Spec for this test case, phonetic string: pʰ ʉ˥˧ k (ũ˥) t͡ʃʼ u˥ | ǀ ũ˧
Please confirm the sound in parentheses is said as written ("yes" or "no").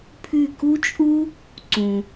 no